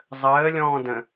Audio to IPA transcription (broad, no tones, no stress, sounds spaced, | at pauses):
zˤ əː lʲ ɔ̃ː d ə̃